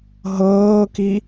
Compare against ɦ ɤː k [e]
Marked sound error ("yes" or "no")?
yes